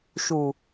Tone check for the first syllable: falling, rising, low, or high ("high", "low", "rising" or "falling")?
low